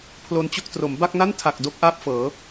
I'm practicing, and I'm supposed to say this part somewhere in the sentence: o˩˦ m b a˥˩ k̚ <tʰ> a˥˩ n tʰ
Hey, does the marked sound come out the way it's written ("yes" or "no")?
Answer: no